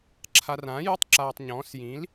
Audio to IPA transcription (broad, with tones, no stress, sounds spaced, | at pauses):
ǁʰ a˧ r ãː˨˥ j u˧˥˧ tˤ ǁ aː˧ tˤ ɲ ɔ̃ː˨˥ s j ĩ˨˥ l